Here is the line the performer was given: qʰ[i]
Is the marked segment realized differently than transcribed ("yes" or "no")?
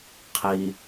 no